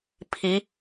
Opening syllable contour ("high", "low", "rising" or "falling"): rising